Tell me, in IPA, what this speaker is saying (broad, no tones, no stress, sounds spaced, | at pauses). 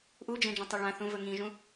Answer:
ʔ u d͡ʒ ẽ d͡ʒ ɐ̃ tˤ ɵ ɭ ã θ ũ v ɵ ŋ ĩ ʒ ũ